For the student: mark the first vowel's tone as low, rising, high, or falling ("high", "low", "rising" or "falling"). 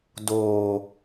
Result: low